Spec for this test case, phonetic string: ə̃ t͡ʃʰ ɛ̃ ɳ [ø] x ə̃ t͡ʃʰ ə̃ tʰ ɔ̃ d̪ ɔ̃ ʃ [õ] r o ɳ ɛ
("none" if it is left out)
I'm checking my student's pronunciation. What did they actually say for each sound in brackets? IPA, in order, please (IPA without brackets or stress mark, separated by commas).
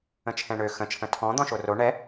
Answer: ø, o